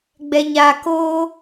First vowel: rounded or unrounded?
unrounded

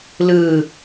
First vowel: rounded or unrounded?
unrounded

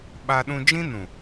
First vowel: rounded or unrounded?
unrounded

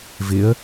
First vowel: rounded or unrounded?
unrounded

